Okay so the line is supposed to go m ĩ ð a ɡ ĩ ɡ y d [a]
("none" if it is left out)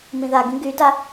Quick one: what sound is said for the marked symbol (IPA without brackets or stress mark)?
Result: a